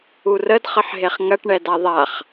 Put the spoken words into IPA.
u r ə d χ ə ħ ɦ e χ ŋ ɐ ʈ ɳ ɛ d a ðˤ a χ

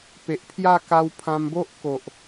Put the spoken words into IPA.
p e˨ ʔ pʰ j a˥˧ k a˧ w pʰ ã˧ m b o˦ ʔ k o˨ ʔ

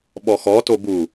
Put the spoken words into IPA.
ɓ ɔ x ɔ t o b u

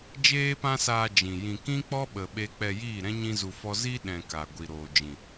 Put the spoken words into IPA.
d͡ʒ eː˦ p ã˦ s aː˧ d͡ʒ ĩ˨ j ĩ˧ k ĩ˦ k͡p ɔ˦ ɓ ə˧ ɓ e˦ k͡p ɛ˧ j iː˦˨ ɾ ɛ̃˦ ɲ ĩ˦ z u˧ f ɔ˦ z i˦ ɗ ɛ̃˧ k a˨ ɡʷ i˨ ɾ oː˨ d͡ʒ ĩ˨

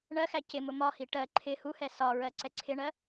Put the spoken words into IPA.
ɳ ɜ x æ c ɪ m ʊ m ɒ h i ʈ ɜ ǃʰ ɪ h u h ɛ s ɒ ɹ ɜ ǀ ɛ ǀʰ ɪ ɳ ɜ

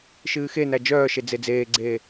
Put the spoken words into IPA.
ʃ ɨː x e n æ d͡ʒ œː ʃ e d͡z e d͡z eː ɡ͡ǀ eː

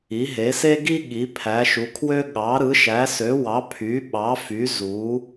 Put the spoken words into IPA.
i˨˦ ɦ e˨˦ s e˥ ɡ i˥ ɠ i˨˦ pʰ æ˨˦ ʃ u˨˦ kʰ w ø˥ ɠ ɑ˨˦ ɾ ɯ˨˦ ʃ æ˨˦ s ø˨˦ w ɑ˨˦ pʰ y˨˦ ɓ ɑ˨˦ f y˨˦ z u˨˦

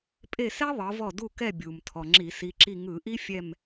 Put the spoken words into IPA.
pʼ e˦˨ s ɛ˥ ðˤ ɤ˨˦ v ɔ˦˨ d u˦˨ k ɛ˦˨ bʲ u˩ m tʰ ɔ˩ ŋ͡ǁ i˧˩˧ s i˨˦ ǁ i˦˨ ŋ ɯ˧˩˧ ʔ i˥ fʲ ɛ˦˨ m

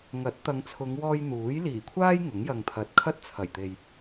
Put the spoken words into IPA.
ŋ ɐ˨˥ t̚ t̪ ɐ˨˧ ŋ t͡sʰ ʊ˨˧ ŋ w ɔː˥ j n̪ uː˨˥ j l iː˨˩ kʷʰ aː˥ j ŋ ʊ˨˥ ŋ j ɐ˨ ŋ t̪ʰ ɐ˨˥ t̚ kʰ ɐ˥ t̚ t͡sʰ ɐ˨˩ j t̪ e˨ j

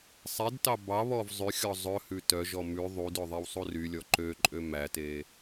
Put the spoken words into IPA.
sˤ ɛ d t ɑ b ɑ β ɔ v zˤ ʉ xʲ ɔ zˤ ɵ h ʉ t œ ʒ ɔ m ʉ ðˤ u d ɵ ðˤ e w sˤ u r y lʲ ɔ ǃ ø ǃʼ ø m æ t e

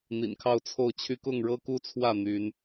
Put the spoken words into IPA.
n̪ ḭ˨˩ n kʰ ɑ˥˧ ʊ̯ t͡sʰ o˥˩ ʊ̯ t͡ɕʰ y˥ k ʊ˥˩ ŋ ɻ ɤ˥ k u˥ t͡sʰ w ä˥˩ n̪ y˧˥ n

